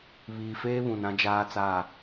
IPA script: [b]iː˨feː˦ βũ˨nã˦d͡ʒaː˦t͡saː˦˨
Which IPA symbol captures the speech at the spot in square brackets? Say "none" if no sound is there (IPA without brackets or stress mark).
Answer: β